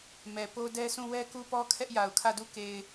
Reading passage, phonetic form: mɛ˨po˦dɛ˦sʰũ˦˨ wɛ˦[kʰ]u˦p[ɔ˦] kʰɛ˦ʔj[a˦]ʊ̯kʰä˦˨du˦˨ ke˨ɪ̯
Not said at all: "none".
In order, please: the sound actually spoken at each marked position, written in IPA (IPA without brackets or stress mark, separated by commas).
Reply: k, ɔ˦, a˨